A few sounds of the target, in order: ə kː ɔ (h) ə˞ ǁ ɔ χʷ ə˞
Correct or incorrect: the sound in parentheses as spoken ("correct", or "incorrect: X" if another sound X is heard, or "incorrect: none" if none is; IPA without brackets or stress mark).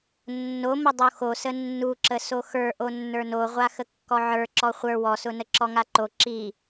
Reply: incorrect: ʕ